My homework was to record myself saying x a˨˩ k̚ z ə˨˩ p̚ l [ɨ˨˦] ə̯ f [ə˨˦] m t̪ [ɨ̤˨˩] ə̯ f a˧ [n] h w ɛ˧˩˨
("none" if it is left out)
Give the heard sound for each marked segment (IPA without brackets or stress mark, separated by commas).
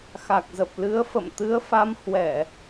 ɨ˨˦, ə̰˧˨, ɨ˨˦, m